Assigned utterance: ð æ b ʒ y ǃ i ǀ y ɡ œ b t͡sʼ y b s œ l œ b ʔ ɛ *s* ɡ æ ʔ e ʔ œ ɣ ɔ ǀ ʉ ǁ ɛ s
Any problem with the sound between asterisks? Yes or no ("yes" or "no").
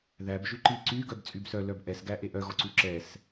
no